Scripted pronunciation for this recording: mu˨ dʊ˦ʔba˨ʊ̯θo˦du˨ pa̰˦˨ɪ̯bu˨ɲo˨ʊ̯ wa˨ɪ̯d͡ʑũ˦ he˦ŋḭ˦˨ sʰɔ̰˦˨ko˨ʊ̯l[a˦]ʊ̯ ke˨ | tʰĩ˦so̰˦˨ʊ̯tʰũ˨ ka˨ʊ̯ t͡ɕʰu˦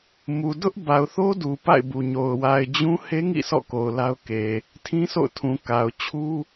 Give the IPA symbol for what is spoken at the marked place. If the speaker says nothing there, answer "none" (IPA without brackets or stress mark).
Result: a˦